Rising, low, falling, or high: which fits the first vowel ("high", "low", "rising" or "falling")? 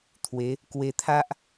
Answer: rising